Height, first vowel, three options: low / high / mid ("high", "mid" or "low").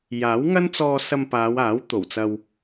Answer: low